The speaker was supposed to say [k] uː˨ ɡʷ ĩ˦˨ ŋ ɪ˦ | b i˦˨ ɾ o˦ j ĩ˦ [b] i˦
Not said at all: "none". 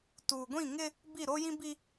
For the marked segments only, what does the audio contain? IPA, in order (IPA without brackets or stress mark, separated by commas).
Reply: t, b